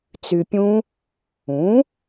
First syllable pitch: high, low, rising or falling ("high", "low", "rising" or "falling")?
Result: low